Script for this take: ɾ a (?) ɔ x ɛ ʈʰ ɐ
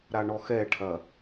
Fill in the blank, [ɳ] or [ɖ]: ɳ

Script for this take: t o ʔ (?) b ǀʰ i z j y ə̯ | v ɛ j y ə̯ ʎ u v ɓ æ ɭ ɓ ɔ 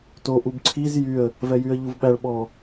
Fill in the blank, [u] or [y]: u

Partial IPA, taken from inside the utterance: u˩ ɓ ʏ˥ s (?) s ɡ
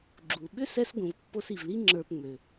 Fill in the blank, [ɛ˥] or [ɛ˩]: ɛ˥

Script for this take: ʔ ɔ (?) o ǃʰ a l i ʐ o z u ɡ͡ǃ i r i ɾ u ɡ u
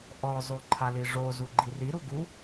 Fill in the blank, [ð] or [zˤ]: zˤ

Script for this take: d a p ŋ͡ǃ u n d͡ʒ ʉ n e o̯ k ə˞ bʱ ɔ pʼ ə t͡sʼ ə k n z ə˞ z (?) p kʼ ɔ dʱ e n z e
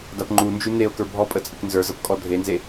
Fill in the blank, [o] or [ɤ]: ɤ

